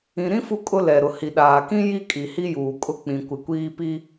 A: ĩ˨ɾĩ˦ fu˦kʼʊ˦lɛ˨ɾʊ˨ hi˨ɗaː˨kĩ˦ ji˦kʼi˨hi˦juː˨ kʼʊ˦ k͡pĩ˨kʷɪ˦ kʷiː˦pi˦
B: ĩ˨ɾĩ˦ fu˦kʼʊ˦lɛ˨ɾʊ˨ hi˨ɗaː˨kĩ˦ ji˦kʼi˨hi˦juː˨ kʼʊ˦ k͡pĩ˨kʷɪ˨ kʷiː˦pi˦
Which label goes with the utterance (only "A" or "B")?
B